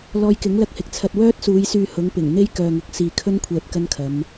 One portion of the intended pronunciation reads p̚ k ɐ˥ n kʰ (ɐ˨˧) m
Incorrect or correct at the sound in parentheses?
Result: correct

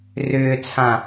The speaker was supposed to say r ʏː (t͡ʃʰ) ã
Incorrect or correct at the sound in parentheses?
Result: incorrect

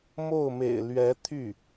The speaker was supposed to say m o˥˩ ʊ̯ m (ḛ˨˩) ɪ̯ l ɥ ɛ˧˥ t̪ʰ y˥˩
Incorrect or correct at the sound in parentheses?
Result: correct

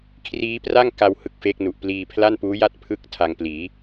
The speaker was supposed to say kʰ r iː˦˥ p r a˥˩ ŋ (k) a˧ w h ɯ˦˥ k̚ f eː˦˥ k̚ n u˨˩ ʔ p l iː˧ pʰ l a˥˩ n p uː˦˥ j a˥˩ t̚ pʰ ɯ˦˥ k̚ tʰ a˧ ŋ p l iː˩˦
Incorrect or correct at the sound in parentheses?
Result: correct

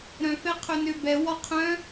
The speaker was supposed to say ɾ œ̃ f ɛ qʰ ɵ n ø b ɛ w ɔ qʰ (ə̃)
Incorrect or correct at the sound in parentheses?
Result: incorrect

